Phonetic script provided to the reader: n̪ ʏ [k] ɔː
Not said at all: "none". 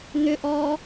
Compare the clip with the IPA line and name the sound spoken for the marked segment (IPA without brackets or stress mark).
ʔ